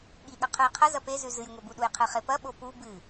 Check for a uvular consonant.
present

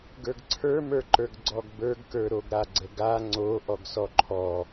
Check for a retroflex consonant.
absent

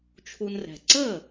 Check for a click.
present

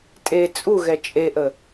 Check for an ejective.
present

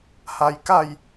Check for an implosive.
absent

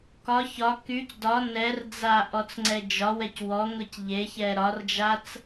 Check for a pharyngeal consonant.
absent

